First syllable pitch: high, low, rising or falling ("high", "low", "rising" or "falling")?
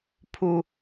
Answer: low